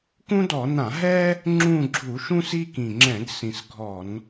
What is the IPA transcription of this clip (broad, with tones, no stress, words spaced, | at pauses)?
kũ˥dɔ˧˩˧ nã˧˩˧ɦɛ˥ | ŋ͡ǁũ˦˨ɡ͡ǁu˧˩˧ʃũ˥s i˥kĩ˨˩ŋ͡ǁɛ̃˧˩˧ɡ sĩ˨˩sɡʱɔ˧˩˧n